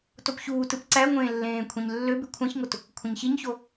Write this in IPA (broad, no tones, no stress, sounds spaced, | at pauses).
t o p ç uː t ɯ p ǀ æ ŋʷ ẽː lː ẽː kʷʰ ẽ ɲ lː ø b y kʷʰ æ̃ ç ŋ o t | kʷʰ ẽ ɲ ç i ɲ ç o